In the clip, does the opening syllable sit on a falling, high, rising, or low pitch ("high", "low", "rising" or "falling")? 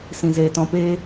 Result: low